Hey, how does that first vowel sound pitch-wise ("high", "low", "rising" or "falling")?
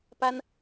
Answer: high